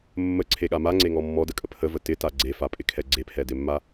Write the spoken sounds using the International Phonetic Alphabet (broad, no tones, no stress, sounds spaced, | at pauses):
mː ə ǀʰ e ɠ a m a ŋ͡ǀ e ŋ ɔ mː ɔ d ə kʼ ə pʰ ə v ə t ɪ t a ɡ͡ǀ e f a pʼ ɪ kʰ ɛ ɡ͡ǀ e pʰ ɛ d ɪ mː a